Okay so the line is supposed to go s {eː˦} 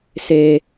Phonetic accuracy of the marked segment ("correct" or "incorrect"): correct